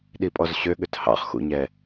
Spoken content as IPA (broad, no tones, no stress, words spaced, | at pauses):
ɗipʼɔzɕøɠøt hɑ̰χxṵɲɛ